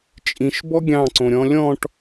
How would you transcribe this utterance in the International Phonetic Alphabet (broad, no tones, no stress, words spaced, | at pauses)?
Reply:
t͡ʃʼĩʃbɔ ɡʲɑ̃ǀõɾʲɔ̃ lʲɔ̃ʈ